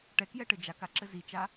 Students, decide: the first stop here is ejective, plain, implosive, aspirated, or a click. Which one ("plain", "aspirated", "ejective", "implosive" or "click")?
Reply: plain